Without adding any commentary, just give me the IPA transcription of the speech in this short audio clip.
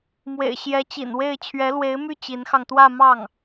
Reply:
m w ḛ˨˩ ɪ̯ ɕ j ɛ˧˥ t͡ɕ ḭ˨˩ n w e˥˩ ɪ̯ t͡ɕʰ ɥ ɛ˧˥ l w e˧˥ ɪ̯ m y˥˩ t͡ɕ i˧˥ n x ɑ˧ ŋ t̪ w ä˥˧ m ɑ˥˩ ŋ

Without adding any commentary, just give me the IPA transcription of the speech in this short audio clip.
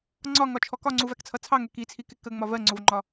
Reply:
ŋ͡ǀ ɒ ŋ ɒ t͡ʃʰ ɔ k ɒ ŋ͡ǀ u v æ k t͡sʰ ʌ t͡sʰ ɑ ŋ ɛ k i t͡sʰ i k ɪ k ə ŋ͡m ɒ v ɜ ŋ͡ǀ ʊ v ŋ͡ǃ ɒ

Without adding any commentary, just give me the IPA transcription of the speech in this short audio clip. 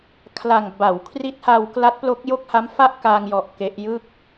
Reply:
kʰ l a˨˩ ŋ b a˩˦ w kʰ r i˦˥ t̚ h a˧ w k l a˦˥ t̚ p l o˦˥ k̚ j o˥˩ k̚ h a˦˥ m f a˥˩ ʔ k a˧ ŋ j ɔ˨˩ ʔ k e˦˥ ʔ j ɯ˥˩ k̚

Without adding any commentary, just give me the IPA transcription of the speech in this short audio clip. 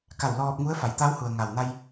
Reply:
k a˧˩ w l ɔː˧ p̚ ŋ u˧˥ ə̯ f a˩˧ j t̪ a˧˥ w h u˩ ə̯ ŋ a˩ w n a˧ j

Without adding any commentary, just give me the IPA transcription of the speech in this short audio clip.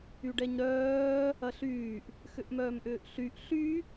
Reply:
y ɖ ɛ ɲ ɾ œː | ɐ ɬ yː ʔ | x ʏ ʔ m œː m ʔ ʏː ʔ ɬ y ʔ ɬ y

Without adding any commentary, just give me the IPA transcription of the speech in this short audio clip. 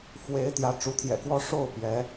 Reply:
f w e˧˥ ɪ̯ t̪ j ä˧˥ ʈ͡ʂ u˧˥ t̪ʰ j ɛ̰˨˩ k w ɔ˥ ʂ o˥˩ ʊ̯ p j ɛ˧˥

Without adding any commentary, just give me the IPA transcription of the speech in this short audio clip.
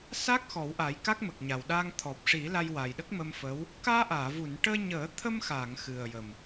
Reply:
s a˦˥ k̚ x ɔ˨˩˦ w ʔ a˨˩˦ j k a˦˥ k̚ m ə˨˩ k̚ ɲ a˨˩ w ɗ aː˧ ŋ t̪ʰ ɔ˨˩ p̚ ʂ i˨˩˦ l a˧ j w a˨˩ j ɗ ə˦˥ k̚ m ə˧ m f əː˧˥ w | k aː˧ ʔ aː˨˩˨ v u˨˩˨ n ʈ əː˧ ɲ əː˨˩˦ t̪ʰ ə˧ m x a˨˩˨ ŋ x ɨ˨˩ ə̯ j ə˨˩ m

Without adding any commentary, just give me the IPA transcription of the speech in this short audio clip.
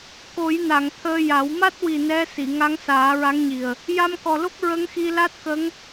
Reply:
k o˨˩˦ j n a˨˩˨ ŋ t̪ʰ əː˧ j a˨˩˦ w m a˦˥ t̚ w i˨˩ n ɛ˧˥ s i˨˩˨ ŋ a˧˥ ŋ s aː˨˩˦ ɹ a˧˥ ŋ ɲ i˨˩ ə̯ | j a˧ m k ɔ˨˩ l o˦˥ k̚ ɹ ə˧˥ ŋ x i˧ l a˦˥ t̚ k ə˧˥ ŋ

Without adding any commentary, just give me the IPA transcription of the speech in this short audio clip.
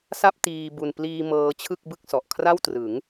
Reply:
s a˥˩ p̚ t iː˧ b u˧ n p l iː˧ m ɤː˧ t͡ɕʰ ɯ˥˩ k̚ b ɯ˥˩ k̚ s ɔ˨˩ ʔ kʰ r a˥˩ w t r ɯ˩˦ ŋ

